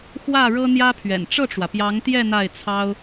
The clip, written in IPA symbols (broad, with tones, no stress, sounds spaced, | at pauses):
x w ä˥˩ ɻ ɤ˥ n̪ j ä˥ pʰ ɥ ɛ̰˨˩ n ʈ͡ʂ ɤ˥˩ ʈ͡ʂ w ä˩ p j ɑ˧˥ ŋ t̪ j ɛ˥˧ n̪ a˥˩ ɪ̯ t͡sʰ ɑ˥ ʊ̯